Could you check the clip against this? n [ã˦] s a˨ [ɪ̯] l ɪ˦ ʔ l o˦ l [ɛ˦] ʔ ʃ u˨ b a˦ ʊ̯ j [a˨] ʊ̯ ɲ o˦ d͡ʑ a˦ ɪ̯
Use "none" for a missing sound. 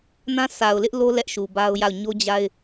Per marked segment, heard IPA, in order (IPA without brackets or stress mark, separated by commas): ã˦, ʊ̯, ɛ˦, a˦˨